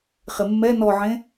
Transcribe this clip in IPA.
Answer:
χ ɪ mː ɛ n ɔ ʕ ẽ

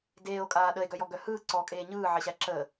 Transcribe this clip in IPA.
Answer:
d eː o̯ kʼ aː ɗ ə e̯ ɡ œ j ɔ ɡ œ h ɯː ǀ ɔ kʼ eː ɲ ɯː ʕ ɪ ɕ æ ǁ ə

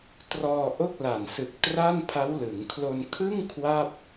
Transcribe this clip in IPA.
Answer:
t r ɔː˧ ʔ o˥˩ k̚ l a˨˩ n s ɯ˨˩ k̚ t r a˥˩ n pʰ a˦˥ w l ɯ˩˦ ŋ kʰ l o˧ n kʰ ɯ˥˩ ŋ kʰ w a˥˩ p̚

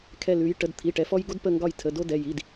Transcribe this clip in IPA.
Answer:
kʰ ɛ˧˩ l ʉ˩˧ j ʈ ə˩˧˩ d t̪ʰ i˩˧˩ ʈ ɛ˩˧ f ɔ˧ j ɡ o˧ d p ə˧˩ ŋ ɡ ɒ˧˩ j tʰ ə˩˧˩ d o˧ d ɛ˩˧˩ j i˩˧˩ d

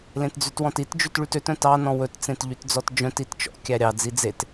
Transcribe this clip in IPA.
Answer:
l ẽ t d͡z ʉ t w ɔ̃ t i t d͡ʒ ʉ t ɭ y t ø t œ̃ t ɑ n ɔ̃ w ɵ t t͡s ẽ t ʎ y t d͡z ɔ t d͡ʒ œ̃ t i t t͡ʃ ɔ̰ kʲ æ ɾʲ ɑ d͡z i d͡z e t

